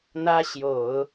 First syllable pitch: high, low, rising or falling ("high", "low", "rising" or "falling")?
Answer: high